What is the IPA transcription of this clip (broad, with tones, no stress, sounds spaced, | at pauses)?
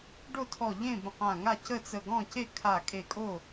ɖ o˥˨ tʰ ɔ˧˩ ʎ ẽ˥˨ b ə̃˧˩ q ã˧˩ ŋ a˥˨ c ə˥˨ t͡s ə˧˩ ɡ ɔ̃˥˨ c e˥˨ kʰ a˧˩ kʼ e˧˩ kʼ o˥˨